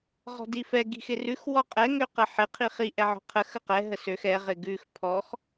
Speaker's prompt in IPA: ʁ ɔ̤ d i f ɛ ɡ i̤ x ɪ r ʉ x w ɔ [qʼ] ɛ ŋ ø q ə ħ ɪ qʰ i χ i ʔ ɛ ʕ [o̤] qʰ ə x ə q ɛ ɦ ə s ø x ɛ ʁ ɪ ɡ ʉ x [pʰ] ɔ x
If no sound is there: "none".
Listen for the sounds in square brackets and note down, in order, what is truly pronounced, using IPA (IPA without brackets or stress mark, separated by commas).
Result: qʼ, ɔ̤, pʰ